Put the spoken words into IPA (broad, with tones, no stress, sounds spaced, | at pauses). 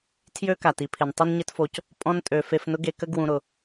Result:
tʰ j ø˥ k a˩ t i˧ pʰ ɪ˩ n tˤ ʏ˥ n ɲ ɪ˥ t f o˧ c | pʼ ɔ̃˧ n tʼ ø˩ f e˧ f n ʊ˥ ɡ e˧ k ə˥ ɡ w ũ˧ ɾ ʊ˩